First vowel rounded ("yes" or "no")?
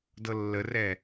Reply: no